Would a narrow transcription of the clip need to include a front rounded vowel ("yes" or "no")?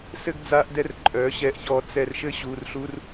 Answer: yes